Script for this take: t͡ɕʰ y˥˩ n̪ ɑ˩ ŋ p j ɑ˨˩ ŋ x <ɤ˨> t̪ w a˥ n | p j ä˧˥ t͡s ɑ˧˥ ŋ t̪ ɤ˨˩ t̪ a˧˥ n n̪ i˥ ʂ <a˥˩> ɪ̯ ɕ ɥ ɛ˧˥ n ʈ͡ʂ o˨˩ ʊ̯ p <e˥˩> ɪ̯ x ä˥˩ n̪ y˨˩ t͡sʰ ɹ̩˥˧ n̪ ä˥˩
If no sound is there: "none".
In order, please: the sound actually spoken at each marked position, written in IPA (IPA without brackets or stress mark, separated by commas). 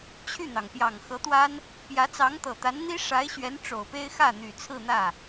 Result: ɤ˧˥, a˧˥, e˥